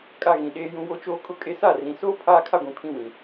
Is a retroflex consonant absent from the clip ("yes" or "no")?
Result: yes